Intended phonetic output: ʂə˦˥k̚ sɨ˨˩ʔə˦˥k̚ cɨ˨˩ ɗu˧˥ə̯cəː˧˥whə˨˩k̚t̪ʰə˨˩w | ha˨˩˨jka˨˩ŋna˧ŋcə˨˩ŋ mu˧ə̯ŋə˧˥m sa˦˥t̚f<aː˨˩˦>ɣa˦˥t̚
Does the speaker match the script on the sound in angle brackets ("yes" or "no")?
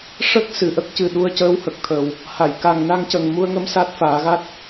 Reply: yes